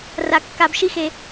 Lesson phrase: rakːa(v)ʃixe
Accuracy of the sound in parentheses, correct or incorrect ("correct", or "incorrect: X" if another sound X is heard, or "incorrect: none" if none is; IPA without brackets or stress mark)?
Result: incorrect: b